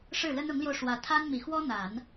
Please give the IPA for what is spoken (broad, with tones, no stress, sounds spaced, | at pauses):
ʂ ɻ̩˥˩ l ə˥ n ʊ˧˥ ŋ l j o˧ ʊ̯ ʂ w ä˧˥ t̪ʰ a˥ n m i˨˩ x w ɔ˥ n̪ a˨˩˦ n